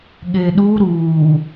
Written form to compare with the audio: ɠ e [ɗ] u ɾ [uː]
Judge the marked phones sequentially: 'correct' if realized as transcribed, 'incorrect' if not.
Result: correct, correct

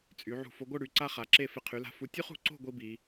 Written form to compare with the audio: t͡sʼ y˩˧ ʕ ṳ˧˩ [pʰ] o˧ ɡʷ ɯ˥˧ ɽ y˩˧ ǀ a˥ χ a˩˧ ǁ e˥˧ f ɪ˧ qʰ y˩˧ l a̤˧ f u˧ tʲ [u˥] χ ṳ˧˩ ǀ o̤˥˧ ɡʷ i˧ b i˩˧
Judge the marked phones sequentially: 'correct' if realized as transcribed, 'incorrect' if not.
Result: incorrect, correct

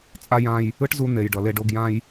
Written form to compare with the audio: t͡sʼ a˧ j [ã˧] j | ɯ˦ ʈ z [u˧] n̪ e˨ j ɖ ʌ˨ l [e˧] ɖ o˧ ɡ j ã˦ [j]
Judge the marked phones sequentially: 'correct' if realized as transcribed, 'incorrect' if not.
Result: correct, correct, correct, correct

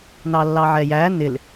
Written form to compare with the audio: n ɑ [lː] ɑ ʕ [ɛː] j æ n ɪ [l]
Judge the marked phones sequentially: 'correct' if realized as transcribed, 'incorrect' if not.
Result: correct, incorrect, correct

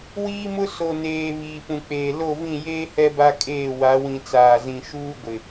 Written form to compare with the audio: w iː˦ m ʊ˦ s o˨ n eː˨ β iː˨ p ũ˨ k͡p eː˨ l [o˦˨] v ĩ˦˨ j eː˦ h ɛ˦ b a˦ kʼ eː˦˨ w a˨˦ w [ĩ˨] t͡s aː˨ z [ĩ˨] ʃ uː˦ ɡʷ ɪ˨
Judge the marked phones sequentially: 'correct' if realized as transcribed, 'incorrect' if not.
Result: correct, correct, correct

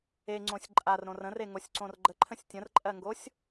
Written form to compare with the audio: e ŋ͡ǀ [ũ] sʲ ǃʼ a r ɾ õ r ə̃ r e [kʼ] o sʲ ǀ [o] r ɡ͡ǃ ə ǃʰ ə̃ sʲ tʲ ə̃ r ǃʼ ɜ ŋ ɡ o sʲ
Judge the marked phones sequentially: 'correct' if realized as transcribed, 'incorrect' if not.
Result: incorrect, incorrect, incorrect

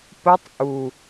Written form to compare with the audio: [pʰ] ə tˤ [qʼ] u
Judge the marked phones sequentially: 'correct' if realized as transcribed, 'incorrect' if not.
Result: incorrect, incorrect

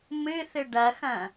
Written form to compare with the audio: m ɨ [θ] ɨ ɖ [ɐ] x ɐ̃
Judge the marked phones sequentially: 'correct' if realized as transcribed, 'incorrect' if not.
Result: correct, correct

